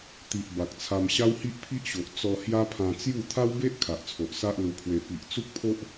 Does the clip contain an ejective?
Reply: no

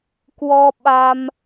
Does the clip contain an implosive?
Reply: yes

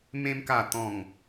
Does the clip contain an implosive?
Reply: no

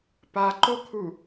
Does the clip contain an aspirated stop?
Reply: yes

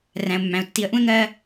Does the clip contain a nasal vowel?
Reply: yes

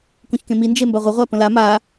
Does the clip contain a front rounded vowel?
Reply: no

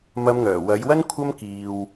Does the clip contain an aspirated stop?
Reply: yes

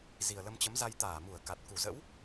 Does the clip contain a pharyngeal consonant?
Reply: no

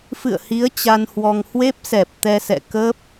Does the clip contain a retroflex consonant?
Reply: no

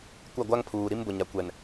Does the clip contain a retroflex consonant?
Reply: no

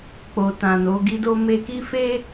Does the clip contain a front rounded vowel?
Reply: no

